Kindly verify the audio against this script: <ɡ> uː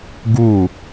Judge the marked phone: correct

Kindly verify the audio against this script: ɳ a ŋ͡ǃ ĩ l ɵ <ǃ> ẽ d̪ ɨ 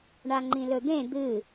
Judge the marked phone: incorrect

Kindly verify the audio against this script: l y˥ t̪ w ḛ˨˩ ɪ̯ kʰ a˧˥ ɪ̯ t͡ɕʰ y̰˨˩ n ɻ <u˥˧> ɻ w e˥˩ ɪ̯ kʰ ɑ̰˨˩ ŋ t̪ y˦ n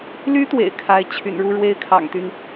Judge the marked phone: correct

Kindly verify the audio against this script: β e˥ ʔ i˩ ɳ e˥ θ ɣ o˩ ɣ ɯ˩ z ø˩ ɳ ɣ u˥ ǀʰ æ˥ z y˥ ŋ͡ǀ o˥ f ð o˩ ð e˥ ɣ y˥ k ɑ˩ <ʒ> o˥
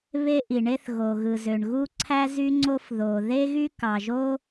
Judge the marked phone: correct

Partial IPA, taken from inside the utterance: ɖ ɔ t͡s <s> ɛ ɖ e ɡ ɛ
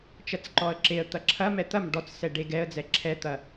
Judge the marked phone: correct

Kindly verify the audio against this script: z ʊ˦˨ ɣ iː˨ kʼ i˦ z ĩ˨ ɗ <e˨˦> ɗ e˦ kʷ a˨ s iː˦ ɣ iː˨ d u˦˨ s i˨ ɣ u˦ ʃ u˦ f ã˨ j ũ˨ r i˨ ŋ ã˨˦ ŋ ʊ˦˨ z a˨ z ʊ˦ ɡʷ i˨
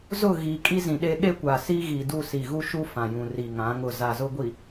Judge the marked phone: incorrect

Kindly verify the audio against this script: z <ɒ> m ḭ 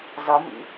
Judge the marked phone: correct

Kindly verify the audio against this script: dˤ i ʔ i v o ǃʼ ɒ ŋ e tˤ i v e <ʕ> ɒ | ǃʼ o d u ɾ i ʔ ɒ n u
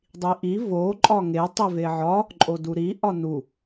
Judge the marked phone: correct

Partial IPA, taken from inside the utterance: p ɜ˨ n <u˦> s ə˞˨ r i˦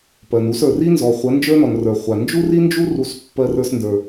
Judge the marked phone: correct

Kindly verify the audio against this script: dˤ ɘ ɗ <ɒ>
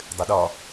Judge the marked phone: correct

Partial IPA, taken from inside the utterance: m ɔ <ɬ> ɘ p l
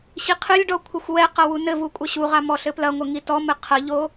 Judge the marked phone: correct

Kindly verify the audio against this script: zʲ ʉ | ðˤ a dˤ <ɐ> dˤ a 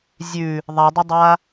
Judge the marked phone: correct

